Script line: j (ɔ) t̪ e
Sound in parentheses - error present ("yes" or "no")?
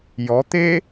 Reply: no